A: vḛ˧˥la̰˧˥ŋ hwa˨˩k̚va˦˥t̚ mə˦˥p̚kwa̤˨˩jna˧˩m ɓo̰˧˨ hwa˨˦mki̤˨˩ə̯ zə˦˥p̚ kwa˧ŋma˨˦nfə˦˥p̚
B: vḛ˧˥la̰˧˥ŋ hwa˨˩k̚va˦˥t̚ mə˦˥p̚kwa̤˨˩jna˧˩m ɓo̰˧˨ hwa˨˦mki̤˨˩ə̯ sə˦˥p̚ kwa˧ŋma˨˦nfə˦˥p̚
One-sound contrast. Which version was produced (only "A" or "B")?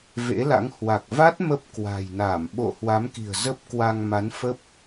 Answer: A